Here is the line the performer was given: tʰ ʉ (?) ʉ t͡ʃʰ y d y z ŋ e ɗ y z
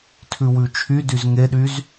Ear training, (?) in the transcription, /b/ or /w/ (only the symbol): w